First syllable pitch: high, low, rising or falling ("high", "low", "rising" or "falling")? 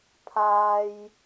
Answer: high